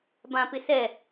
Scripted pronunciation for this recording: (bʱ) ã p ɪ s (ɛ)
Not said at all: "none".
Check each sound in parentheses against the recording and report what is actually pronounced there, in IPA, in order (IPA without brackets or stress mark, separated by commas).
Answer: b, ɛ